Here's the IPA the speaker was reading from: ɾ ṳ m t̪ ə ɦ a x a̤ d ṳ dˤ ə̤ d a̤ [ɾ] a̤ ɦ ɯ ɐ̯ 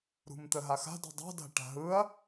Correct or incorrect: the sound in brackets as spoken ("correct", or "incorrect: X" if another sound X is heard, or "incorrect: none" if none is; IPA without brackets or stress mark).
incorrect: ʈ